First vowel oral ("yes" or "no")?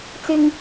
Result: yes